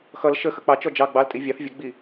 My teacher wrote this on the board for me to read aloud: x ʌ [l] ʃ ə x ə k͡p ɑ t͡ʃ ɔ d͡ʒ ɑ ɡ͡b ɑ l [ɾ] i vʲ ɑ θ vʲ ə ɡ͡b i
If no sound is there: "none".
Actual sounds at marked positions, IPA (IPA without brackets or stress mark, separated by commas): l, tʼ